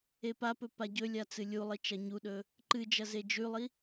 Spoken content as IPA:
e p a p ɵ p a ɟ ɵ lʲ a t͡s ɨ lʲ u lˠ i t͡ʃ ɐ ɲ u ɗ ɵ | ǃ ɨ d͡ʒ ɐ z e d͡ʒ ʉ lˠ i

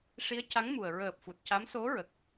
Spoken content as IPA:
ʂ i˧˥ ə̯ c a˧˥ ŋ m u˨˩ ə̯ ɹ əː˨˩ p̚ f u˨˩ t̚ c a˧˥ m s o˧˥ ɹ ə˨˩ k̚

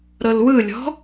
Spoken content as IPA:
ɾ ɤ l w ɯ lʲ ɔ̤

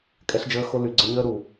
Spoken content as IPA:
kʼ ɛ˧ ɬ d͡ʒ əː˧ x o˧ l y˨ ɡ͡ǀ ə˧ ɲ əː˦ ɾ u˨

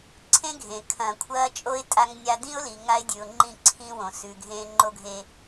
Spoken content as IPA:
ǀʰ ẽ˦ ɡʱ ẽ˨ kʰ ɐ̃ː˨ kʷʰ ɐː˦ t͡ʃʼ o˦ ɪ̯ tʼ a˦ ŋ nʲ a˦ d ĩ˦ ʊ̯ l i˨ ŋ a˦ ɪ̯ dʲ ʉ˨ ʊ̯ ŋ͡ǃ ĩ˦˨ ǀʰ ĩ˦ w õ˨ s ʉ˨ ɡʱ ẽ˦ ŋ͡ǃ o˦ ɡʱ e˦

